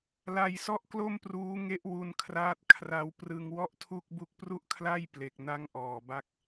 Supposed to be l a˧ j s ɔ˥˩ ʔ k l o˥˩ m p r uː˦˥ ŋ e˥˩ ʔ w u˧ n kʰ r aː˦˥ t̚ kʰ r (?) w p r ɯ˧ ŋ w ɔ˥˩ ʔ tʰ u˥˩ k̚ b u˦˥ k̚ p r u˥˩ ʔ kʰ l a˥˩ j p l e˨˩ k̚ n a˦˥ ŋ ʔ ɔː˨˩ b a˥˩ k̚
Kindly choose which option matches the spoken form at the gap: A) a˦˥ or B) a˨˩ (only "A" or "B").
A